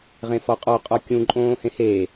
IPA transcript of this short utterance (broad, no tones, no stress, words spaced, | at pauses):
ʁẽfɔqʼɔ qʼɔkʲũ ǃʼõːhẽheː